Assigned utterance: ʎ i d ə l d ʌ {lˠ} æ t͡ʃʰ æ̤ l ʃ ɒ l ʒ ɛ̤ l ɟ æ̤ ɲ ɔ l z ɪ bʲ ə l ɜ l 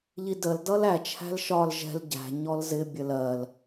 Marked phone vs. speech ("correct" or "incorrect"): incorrect